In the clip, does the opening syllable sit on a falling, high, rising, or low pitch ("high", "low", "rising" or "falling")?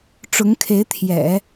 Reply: rising